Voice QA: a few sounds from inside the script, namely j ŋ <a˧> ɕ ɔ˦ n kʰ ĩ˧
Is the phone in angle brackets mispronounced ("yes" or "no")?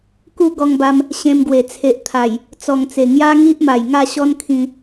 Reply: yes